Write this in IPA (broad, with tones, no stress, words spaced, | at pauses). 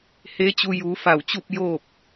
he˧˥t͡ɕu˧ juː˩˧fa˧˩wt͡ɕu˥˨p̚ joː˥˨p̚